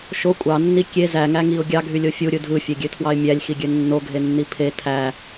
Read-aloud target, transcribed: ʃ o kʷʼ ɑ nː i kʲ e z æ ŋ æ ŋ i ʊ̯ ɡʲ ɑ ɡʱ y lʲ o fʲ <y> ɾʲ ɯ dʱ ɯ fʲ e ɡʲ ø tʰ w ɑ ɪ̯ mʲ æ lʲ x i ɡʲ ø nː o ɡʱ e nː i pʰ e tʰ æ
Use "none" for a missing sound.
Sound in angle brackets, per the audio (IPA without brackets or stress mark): u